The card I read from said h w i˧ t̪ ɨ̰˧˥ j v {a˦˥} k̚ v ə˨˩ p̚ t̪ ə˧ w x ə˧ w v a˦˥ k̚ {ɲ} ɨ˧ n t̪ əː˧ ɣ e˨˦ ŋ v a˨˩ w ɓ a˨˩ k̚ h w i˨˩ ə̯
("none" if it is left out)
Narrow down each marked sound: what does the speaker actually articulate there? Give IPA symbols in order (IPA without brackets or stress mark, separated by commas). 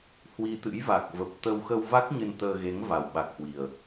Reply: a˨˩, ɲ